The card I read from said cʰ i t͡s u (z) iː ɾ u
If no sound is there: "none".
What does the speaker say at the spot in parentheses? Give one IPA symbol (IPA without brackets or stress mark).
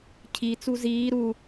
z